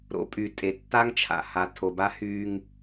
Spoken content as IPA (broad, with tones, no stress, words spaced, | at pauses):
ɾo̰˨pʼy˨ tʼe˨tːa˦ŋt͡ʃʰa̰˨ ha˨tʰo˨ba˦ hyː˦ŋ